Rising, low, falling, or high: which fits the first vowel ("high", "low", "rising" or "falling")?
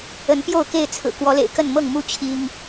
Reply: rising